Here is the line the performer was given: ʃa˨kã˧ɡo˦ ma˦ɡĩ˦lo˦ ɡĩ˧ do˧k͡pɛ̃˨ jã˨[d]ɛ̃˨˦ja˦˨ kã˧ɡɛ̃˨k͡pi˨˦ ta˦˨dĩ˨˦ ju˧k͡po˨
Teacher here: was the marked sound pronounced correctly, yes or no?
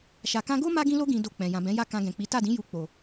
no